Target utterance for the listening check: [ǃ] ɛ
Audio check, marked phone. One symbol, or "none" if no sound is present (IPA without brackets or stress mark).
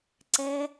ǀ